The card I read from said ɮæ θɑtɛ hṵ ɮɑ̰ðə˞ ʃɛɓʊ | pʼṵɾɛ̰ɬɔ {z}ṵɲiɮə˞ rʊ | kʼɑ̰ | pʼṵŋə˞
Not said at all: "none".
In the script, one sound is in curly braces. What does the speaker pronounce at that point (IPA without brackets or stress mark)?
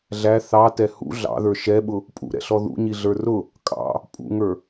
ð